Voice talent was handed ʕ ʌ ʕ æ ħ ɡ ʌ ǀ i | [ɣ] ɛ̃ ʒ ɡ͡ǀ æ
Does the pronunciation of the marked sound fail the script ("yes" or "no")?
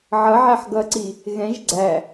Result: no